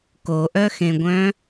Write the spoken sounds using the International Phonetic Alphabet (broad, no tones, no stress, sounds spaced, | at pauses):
k o ʔ œ x ẽ ɡʷ œ̃